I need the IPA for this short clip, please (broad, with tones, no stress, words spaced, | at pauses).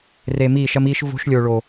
re˨ miː˦˨ʃɐ˦miː˦ʃ vo̤˦ʃlʲo˨ɭoː˨